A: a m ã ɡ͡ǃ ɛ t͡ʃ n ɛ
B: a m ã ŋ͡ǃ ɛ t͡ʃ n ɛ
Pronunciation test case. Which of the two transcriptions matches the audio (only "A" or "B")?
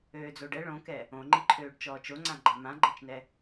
A